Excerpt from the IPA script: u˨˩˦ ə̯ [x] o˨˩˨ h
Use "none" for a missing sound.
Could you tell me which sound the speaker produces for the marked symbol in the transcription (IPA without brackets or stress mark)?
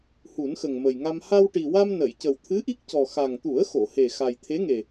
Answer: x